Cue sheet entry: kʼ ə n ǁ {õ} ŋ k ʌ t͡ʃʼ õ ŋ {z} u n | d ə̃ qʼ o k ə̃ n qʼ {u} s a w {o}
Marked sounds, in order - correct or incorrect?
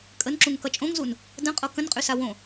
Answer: incorrect, correct, incorrect, incorrect

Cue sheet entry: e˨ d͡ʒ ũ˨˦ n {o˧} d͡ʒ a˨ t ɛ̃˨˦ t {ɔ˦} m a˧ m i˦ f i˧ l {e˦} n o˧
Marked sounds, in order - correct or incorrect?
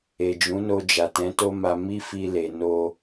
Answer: correct, incorrect, incorrect

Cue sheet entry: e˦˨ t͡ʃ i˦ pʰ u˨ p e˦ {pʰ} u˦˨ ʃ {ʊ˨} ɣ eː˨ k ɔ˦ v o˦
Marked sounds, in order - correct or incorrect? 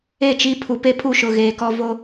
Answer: correct, correct

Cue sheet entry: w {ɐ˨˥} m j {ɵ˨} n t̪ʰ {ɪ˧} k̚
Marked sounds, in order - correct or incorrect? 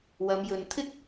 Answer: incorrect, correct, incorrect

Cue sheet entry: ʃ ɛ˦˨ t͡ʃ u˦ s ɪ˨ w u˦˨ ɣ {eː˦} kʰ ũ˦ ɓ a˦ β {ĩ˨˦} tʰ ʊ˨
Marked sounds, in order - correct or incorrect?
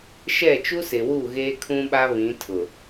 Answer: correct, correct

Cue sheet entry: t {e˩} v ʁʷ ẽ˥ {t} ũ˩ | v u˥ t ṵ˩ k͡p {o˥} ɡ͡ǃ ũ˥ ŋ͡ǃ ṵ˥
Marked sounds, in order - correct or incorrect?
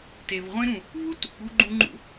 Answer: correct, incorrect, incorrect

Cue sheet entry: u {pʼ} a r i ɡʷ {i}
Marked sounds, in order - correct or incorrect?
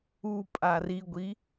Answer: correct, correct

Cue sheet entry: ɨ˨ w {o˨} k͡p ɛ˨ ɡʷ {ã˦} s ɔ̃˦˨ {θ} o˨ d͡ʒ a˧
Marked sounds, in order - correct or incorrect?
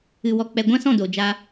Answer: incorrect, correct, incorrect

